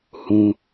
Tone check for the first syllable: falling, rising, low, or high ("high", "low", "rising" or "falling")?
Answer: low